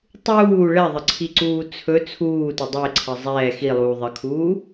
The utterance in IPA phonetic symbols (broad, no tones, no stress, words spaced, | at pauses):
tˤuː ɭɛðˤəǀʰiǀuː t͡sʰɵ t͡sʰuːtɵ dˤeǀʰə zˤɛː xilˠuː ðˤəkʰuː